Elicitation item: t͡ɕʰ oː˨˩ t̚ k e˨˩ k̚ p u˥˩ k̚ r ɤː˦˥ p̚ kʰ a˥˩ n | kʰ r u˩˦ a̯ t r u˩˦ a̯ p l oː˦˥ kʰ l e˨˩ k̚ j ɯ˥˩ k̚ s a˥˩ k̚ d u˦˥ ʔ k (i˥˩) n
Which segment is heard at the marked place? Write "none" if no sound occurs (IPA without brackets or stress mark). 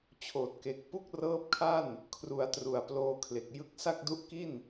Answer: i˥˩